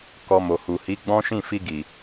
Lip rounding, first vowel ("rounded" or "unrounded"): rounded